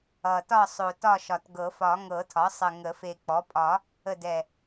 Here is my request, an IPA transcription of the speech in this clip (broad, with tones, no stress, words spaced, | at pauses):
ʌ˨˩tɒ˦˨sˤo˨˩ tɒ˦˨ʃɒ˨˩tɡɤ˨˩˦fɒ˨˩˦ ŋɤ˨˩˦tʰɒ˩˥sˤə˨˩ ŋə˨˩˦fe˨˩k͡pɔ˩˥ pʼɒ˨˩˦ | ə˨˩ dɛ˨˩